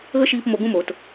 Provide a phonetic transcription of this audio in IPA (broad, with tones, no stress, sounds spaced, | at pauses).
ɣ ə˦ ʃ iː˧ p m o˧ ɡ ũ˦ m oː˨ t